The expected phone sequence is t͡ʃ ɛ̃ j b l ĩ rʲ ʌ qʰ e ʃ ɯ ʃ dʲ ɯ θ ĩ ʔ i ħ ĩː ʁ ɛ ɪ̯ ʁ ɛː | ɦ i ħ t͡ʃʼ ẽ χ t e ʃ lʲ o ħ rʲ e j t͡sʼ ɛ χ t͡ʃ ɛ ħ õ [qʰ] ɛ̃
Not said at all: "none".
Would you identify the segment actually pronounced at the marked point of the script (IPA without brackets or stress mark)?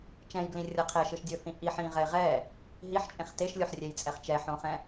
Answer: χ